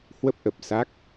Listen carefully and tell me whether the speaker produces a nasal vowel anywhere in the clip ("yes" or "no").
no